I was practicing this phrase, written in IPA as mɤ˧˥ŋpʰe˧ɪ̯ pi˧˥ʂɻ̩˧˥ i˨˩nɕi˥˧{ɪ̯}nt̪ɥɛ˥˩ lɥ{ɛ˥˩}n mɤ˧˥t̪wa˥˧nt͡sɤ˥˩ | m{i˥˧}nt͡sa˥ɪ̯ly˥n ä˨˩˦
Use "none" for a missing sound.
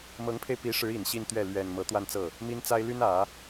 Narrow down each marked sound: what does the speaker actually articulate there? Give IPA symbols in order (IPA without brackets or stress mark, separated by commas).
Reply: none, ɛ˨˩, i˥